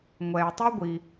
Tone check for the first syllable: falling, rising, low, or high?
low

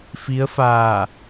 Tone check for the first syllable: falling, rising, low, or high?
rising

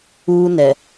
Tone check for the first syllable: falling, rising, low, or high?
high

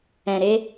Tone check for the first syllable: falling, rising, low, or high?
low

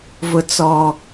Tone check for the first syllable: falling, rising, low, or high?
low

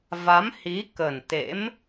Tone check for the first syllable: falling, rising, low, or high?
rising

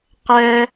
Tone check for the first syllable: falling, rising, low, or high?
high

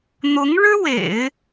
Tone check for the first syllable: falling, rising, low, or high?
rising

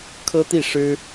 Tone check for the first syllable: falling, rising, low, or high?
high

